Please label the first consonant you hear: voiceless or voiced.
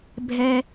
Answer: voiced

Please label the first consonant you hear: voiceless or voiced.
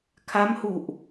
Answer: voiceless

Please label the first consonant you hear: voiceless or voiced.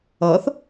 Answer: voiceless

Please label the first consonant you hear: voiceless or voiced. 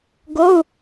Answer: voiced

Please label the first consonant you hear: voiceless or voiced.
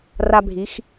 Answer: voiced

